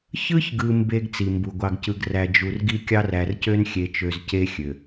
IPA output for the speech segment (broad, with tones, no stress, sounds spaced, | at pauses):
ç ɯ˦ ç ɡ ɯ˨ m b e˦ ɡ t͡s i˨ m b u˨ ɡʷ ɑ˦ ɡ c ɯ˦ ɡ r æ˨ d͡ʒ u˨ r ɡ i˦ kʲ ɑ˦ r æ˨ r c ø˦ n xʲ e˨ t͡ʃ ø˨ z c e˦ xʲ ø˨